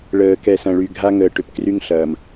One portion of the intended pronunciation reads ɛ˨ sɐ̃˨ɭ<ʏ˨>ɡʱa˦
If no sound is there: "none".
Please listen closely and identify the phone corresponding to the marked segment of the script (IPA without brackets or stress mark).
y˨